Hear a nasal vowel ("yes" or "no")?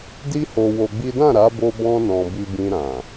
yes